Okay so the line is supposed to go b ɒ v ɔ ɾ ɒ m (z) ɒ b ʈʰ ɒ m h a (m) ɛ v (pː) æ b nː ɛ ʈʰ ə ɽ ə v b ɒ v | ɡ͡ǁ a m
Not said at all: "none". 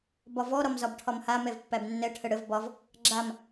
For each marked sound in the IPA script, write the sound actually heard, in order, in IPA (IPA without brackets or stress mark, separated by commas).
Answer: z, m, pː